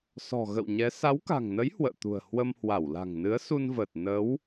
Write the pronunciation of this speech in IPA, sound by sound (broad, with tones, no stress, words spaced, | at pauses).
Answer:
sɔ̤˨˩ ɣə̰˧˨wɲɛ˨˦ sa˨˦wka̤˨˩ŋnə˨˦j hwə̰ː˧˨t̪ṳ˨˩ə̯ hwə˧mhwa˧˩w la̤˨˩ŋnɨ˨˦ə̯su˧nvəː˨˩t̚ nə˨˦w